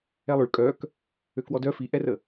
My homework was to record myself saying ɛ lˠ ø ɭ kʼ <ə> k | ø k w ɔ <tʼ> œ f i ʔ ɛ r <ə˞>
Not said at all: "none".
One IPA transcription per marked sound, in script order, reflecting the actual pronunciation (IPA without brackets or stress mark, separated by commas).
œ, d, ə